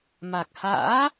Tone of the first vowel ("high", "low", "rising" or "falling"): low